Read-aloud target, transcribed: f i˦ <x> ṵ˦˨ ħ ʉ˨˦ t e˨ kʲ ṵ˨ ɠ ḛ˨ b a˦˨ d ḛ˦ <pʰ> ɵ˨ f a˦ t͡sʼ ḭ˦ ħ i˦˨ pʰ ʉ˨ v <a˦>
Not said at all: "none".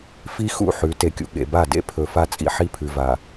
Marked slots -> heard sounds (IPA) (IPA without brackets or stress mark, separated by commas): x, pʰ, a˨